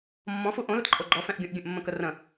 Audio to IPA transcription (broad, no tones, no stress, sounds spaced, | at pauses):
mː ɔ̃ f u ʔ õ l ə t ǃʼ o ɡ͡ǃ ɔ f ɛ̃ ʔ ɡʲ ũ ʔ ɡʲ ə̃ ʔ mː ə̃ k ə r ə̃